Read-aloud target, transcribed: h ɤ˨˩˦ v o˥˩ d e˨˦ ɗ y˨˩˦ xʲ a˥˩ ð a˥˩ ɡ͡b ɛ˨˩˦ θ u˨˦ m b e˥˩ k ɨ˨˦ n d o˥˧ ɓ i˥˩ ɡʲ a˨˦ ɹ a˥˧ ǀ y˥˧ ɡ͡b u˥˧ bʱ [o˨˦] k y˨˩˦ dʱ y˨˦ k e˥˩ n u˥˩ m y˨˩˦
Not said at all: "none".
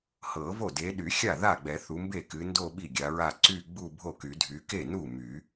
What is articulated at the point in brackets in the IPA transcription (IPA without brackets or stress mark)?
o˥˩